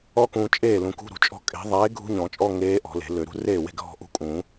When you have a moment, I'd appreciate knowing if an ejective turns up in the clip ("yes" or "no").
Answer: yes